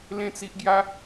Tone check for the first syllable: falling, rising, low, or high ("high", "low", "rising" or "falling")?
falling